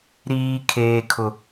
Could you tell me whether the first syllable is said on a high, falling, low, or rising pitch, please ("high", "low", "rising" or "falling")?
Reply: high